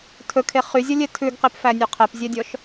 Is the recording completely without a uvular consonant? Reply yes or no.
no